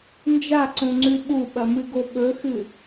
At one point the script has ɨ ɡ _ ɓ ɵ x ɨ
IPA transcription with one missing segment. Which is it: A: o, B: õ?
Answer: A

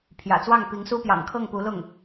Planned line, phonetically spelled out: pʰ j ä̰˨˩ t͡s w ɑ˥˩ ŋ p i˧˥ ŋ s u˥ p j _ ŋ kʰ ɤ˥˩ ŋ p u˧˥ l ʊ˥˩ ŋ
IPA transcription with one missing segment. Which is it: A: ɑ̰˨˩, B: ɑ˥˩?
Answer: A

